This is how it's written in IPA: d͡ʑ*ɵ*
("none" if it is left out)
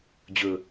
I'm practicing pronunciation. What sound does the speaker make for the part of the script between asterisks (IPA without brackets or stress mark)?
ɵ